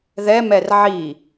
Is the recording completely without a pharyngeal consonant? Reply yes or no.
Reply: no